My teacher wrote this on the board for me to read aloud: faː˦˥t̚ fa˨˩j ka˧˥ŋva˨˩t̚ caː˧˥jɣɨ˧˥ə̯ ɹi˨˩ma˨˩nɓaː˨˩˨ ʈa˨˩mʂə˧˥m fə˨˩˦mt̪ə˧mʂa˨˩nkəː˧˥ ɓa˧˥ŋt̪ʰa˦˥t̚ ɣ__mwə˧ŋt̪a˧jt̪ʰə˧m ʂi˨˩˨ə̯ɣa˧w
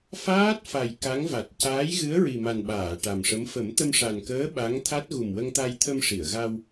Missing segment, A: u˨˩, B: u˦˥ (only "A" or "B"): A